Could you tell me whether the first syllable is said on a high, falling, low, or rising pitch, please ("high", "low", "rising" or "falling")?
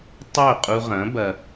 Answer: falling